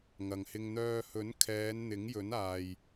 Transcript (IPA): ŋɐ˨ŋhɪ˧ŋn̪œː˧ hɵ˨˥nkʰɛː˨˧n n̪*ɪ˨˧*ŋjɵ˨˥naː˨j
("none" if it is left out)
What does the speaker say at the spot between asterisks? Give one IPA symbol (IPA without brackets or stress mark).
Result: ɪ˨˥